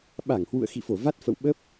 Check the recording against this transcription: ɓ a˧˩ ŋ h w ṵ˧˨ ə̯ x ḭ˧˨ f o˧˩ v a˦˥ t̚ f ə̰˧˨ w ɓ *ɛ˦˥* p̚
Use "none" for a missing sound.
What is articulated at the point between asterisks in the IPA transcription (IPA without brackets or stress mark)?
ə˦˥